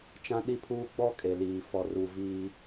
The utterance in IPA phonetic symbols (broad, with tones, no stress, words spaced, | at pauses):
t͡ʃã˦ɗi˦pʰuː˦ ɡ͡bɔ˦kʼe˨liː˨ fɔ˨ruː˨ viː˦